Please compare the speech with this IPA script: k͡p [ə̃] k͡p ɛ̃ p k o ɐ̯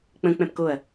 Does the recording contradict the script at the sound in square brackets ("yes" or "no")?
no